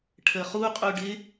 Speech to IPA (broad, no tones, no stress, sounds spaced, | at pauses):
ʈʰ əː χ u qʼ u ɖ ɪ